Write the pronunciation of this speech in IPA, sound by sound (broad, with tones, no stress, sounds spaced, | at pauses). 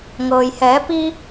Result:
ŋ ɤː˩ j h ɛː˩˧ p i˧